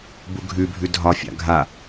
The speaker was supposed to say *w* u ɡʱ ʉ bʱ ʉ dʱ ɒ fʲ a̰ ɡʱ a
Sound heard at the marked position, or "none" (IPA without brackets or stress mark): b